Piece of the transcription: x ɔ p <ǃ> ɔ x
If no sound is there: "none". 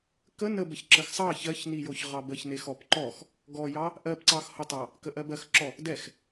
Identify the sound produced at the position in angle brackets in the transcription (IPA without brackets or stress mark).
ǃ